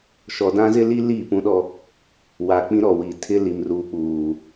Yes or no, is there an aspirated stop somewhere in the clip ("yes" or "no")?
yes